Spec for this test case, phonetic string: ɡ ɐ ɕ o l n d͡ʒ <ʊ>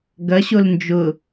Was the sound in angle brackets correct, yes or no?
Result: yes